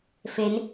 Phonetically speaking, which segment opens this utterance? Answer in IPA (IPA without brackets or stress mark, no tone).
f